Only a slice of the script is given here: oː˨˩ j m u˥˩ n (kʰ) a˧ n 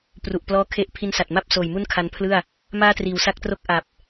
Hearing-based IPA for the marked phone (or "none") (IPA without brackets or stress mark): kʰ